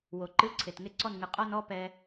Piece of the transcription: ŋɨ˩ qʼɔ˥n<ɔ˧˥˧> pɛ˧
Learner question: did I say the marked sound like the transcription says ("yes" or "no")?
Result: yes